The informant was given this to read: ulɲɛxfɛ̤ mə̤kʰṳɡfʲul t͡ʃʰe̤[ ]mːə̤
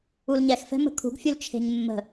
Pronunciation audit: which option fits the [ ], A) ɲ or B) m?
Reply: A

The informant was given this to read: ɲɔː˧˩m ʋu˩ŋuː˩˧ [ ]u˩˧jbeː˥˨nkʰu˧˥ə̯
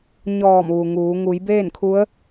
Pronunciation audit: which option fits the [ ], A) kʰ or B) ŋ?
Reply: B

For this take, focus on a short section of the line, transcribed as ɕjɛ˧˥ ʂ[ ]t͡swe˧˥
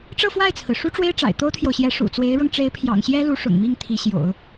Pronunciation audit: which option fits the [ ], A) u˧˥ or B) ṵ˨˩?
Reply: B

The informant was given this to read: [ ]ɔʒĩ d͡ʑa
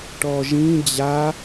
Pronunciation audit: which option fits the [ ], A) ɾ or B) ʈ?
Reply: B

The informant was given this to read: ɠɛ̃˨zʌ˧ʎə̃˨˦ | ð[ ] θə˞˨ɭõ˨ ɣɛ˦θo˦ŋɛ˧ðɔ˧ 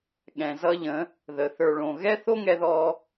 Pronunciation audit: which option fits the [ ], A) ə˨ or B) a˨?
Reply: A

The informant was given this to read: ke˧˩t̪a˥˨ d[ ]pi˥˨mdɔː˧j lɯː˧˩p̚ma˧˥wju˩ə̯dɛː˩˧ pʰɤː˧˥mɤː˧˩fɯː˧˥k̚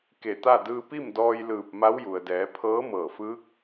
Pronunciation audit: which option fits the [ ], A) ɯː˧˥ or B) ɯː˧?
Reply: B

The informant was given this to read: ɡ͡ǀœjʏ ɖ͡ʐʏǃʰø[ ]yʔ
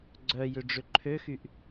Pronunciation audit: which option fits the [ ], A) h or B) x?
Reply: B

